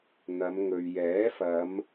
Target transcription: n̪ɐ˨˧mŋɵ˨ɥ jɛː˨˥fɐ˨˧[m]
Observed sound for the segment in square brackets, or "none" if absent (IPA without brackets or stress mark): m